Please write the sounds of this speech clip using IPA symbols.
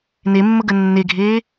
n e mː ə ɡ ə nː e ɡʱ eː

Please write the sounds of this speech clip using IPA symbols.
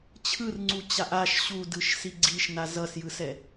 t͡ɕʰ ɯ r ŋ͡ǀ u t͡ɕ a ʔ a ʃ ɕ u d ɯ ʃ s i ɡ͡ǀ i ʃ n a z ʌ s j ɯ s ɛ

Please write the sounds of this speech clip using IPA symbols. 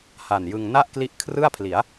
h a˨˩ n j ɯ˧ ŋ n a˥˩ ʔ k l i˦˥ ʔ kʰ r ɯ˥˩ a̯ pʰ l i˩˦ a̯

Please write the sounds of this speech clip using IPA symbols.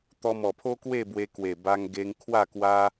t̪ ɔ˧ m ɔ˨˩ pʰ o˦ k w e˥˧ b w e˧ k w e˨˩ b a˧ ŋ ɡ e˧ ŋ kʰ w a˥˧ k w a˦

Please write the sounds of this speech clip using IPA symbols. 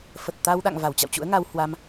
f ə˨˩ t̚ t̪ a˧ w ɗ a̰˧˨ ŋ v a˧˩ w t͡ɕ a̰˧˨ w t͡ɕ ṵ˧˥ ə̯ ŋ a˧ w h w a˧ m

